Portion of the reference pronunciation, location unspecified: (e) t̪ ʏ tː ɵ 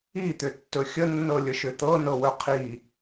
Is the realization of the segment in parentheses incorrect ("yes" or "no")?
yes